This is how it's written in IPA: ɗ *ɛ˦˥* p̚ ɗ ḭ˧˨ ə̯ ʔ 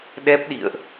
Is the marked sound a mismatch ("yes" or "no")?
no